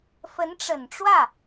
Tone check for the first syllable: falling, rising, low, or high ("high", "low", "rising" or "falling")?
rising